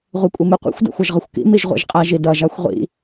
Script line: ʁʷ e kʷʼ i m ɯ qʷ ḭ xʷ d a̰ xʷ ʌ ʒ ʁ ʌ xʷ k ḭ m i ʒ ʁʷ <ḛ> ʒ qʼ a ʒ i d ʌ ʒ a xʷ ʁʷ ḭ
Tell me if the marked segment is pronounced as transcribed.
yes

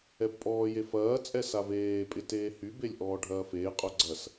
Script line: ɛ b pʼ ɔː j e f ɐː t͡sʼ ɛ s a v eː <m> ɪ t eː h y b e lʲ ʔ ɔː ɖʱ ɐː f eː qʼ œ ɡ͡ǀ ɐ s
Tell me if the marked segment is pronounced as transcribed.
no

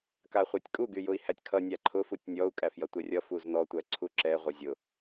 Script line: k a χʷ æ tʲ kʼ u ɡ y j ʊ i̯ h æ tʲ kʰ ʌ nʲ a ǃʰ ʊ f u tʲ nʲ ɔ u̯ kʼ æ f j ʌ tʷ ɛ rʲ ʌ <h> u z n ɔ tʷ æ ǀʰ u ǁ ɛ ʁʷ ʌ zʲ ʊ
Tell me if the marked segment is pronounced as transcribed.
no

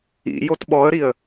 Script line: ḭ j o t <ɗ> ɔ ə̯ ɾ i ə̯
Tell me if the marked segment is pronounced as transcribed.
no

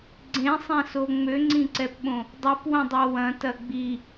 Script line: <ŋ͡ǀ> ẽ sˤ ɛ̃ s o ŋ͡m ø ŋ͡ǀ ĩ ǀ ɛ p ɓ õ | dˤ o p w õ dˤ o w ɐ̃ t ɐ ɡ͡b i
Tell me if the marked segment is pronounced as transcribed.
no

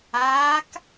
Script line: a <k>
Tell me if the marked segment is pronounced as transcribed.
yes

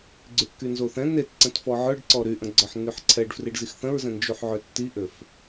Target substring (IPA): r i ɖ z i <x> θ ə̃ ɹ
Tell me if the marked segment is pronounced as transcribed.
yes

